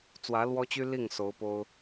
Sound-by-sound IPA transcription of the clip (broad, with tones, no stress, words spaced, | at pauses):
t͡swä˧˥lwɔ˥t͡ɕy˥li˥˩ŋ so˧˥ʊ̯po˥ʊ̯